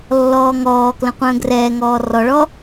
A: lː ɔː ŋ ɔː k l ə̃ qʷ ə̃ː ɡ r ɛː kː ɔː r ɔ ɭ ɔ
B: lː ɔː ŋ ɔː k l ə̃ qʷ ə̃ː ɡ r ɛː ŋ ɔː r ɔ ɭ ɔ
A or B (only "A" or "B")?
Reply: B